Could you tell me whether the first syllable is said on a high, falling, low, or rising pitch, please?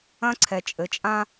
high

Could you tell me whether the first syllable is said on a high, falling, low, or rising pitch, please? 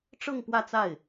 falling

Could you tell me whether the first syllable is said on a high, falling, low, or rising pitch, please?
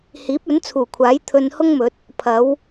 rising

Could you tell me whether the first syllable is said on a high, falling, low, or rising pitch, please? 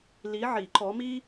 rising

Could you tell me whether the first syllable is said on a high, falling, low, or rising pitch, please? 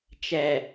low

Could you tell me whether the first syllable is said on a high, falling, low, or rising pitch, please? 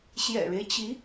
low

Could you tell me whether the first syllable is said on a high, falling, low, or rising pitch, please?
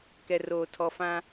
low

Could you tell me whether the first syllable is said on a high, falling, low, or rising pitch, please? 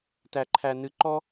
low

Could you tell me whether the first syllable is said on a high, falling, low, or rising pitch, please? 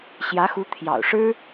rising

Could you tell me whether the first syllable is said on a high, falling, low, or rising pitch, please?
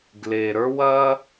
low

